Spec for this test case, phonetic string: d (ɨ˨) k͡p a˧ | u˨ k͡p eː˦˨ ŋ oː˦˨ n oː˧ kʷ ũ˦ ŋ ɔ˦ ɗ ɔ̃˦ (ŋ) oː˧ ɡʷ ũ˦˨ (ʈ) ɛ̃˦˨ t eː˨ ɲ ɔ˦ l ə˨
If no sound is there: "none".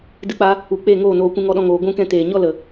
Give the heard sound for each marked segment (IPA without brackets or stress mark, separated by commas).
ɨ˧, ŋ, k